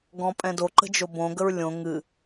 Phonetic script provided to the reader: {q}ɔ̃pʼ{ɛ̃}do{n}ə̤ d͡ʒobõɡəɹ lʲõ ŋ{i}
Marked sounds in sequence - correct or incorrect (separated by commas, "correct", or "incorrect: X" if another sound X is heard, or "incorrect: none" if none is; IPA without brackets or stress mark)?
incorrect: ɡ, correct, incorrect: ǃ, incorrect: ɨ